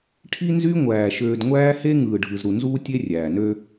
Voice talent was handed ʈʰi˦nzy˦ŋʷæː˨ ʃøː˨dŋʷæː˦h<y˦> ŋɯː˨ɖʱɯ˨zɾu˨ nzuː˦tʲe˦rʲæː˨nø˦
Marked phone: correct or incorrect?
incorrect: e˦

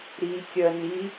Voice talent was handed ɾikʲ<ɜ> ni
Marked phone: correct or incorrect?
correct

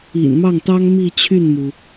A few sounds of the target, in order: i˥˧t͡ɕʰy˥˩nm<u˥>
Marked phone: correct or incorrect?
incorrect: u˩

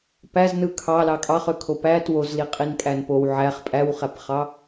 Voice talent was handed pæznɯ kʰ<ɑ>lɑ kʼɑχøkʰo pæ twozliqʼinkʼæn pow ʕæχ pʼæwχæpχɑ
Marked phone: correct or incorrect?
correct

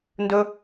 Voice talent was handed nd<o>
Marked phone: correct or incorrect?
incorrect: ɵ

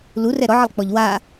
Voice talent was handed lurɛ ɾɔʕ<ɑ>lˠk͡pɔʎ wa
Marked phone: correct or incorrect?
incorrect: ə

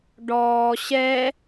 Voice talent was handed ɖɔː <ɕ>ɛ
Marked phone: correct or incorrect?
correct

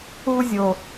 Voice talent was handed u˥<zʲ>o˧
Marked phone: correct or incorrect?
correct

